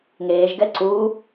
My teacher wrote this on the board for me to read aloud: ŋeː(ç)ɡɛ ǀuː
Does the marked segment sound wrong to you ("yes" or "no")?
yes